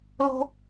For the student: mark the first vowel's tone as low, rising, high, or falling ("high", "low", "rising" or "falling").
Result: high